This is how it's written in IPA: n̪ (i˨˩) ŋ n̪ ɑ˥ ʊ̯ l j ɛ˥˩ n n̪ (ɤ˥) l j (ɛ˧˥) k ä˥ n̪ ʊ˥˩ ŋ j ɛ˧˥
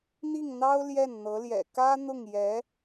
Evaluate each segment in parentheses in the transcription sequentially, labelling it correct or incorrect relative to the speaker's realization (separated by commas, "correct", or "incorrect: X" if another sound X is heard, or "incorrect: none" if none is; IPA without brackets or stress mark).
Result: incorrect: i˥˩, incorrect: ɤ˧˥, incorrect: ɛ̰˨˩